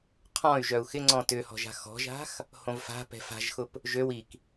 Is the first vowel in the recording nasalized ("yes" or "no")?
yes